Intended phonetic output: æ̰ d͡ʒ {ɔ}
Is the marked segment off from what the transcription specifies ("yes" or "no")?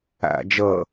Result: yes